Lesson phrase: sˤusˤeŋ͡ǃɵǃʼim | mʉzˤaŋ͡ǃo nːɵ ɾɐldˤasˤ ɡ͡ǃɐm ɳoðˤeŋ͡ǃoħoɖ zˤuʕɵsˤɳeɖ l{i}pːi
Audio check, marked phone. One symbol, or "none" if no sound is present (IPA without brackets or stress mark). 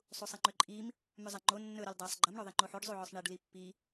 i